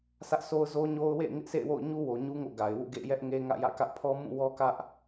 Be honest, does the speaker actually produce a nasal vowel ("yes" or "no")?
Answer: yes